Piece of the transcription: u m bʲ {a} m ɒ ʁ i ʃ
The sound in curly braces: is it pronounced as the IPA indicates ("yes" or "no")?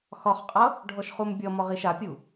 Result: no